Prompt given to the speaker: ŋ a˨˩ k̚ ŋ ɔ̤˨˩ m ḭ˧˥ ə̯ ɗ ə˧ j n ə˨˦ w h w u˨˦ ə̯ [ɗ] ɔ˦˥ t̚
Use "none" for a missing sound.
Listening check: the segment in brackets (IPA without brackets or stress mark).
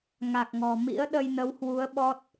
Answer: ɓ